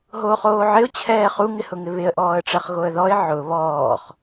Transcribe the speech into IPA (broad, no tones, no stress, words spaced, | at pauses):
ɦoːχoːʕɪʊ̯ t͡ɕʰɛːχu ŋɪhʊŋɪβɪə̯ ʔɔːə̯ʈ͡ʂɛχɣoə̯ðɔɪ̯ ʕʊ βɔːχ